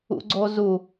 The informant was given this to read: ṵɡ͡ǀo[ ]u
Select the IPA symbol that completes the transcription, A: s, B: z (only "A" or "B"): B